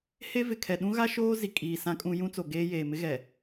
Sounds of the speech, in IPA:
he˦vɪ˨kʰɛ˨ ɗũ˦ɣa˦ʃoː˦ zi˨kʼiː˨ sã˦kʼũ˦ jũ˦t͡so˨ɡeː˦ jeː˨mɪ˦ɣɛ˨

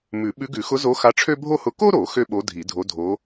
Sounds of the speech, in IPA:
mʉ˨˩˦ ɓʉ˧˥ɡʉ˨˩˦ xʊ˧˥zo˧˥xa˧˥ʈ͡ʂʰø˥ bʱo˥hʊ˧˥ ko˥ɾo˨˩˦ xø˥ɓo˧˥dʱi˨˩˦ dʱo˧˥dʱo˧˥

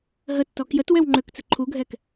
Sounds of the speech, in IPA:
ɦətːɔ kjətwɛw ŋ͡ǃøkt͡sə ǃʰuɡʱɛk

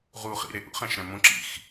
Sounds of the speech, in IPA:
ʁu χḭɾeʔṵχ æ̃ʃɾæ̃mõ ǁḭx

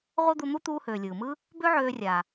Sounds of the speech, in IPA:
ʁʷɤ˥d̪u˧n̪u˥ t̪uː˧høː˩lʲɯː˩mɯ˥ | bø˥ʕøː˧ rʲa˩

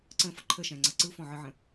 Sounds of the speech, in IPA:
ǀə̃fʌ ǃʰəʃɛ̃ŋ͡ǀʌ ǀɯfɔ̃ʕɨʕə̃

